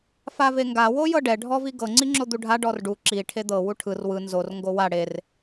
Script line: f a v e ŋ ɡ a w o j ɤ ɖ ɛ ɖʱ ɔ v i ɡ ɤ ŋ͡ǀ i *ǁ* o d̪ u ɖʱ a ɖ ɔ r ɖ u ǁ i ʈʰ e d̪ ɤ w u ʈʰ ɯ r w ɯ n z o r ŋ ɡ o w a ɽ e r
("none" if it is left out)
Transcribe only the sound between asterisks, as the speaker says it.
ŋ͡ǁ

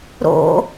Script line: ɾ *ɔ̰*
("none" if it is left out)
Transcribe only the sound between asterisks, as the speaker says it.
o̰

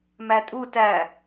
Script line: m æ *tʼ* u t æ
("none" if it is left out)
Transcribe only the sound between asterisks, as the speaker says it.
tʼ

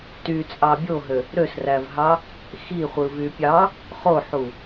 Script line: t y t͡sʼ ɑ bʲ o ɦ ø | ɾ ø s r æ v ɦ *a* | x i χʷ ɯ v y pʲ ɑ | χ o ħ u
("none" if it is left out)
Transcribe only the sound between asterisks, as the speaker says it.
ɑ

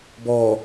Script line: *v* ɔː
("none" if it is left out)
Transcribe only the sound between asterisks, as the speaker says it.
b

